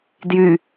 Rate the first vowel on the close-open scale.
close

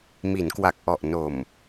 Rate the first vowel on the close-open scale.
close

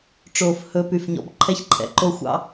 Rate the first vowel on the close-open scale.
mid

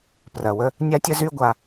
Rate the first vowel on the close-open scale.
open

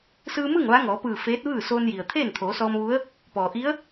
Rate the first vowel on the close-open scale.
close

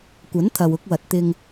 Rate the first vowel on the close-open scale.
open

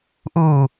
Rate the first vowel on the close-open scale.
close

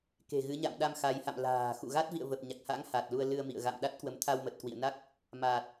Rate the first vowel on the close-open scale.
mid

